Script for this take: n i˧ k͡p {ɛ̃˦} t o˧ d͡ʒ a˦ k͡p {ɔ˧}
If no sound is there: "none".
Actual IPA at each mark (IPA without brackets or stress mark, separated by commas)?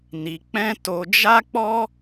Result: ɛ̃˦, ɔ˦